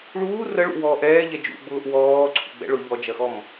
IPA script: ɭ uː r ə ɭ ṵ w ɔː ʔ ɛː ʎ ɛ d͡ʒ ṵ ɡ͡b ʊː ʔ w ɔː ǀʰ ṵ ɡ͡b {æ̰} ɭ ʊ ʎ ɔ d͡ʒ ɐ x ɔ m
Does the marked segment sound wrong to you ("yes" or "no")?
yes